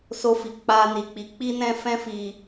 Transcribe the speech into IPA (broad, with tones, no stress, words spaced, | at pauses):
so˧fi˨ k͡pa˧ni˨k͡pi˨˦ k͡pi˦nɛ̃˦ fɛ̃˦fi˧